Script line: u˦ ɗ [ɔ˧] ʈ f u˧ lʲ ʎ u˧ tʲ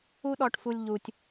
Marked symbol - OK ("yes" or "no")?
yes